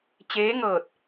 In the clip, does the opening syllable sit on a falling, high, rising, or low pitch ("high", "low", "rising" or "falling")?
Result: rising